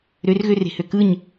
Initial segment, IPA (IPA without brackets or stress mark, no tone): ɾ